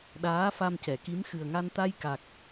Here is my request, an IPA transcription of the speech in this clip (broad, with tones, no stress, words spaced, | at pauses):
ɗaː˧˥fa˧mcɛ˨˩˨ki˧˥m xɨ˨˩ə̯ŋa˧n t̪a˧jka˨˩k̚